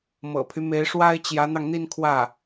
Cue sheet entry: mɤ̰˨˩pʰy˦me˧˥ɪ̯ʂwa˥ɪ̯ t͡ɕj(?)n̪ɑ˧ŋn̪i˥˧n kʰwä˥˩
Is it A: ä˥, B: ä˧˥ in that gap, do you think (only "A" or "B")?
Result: B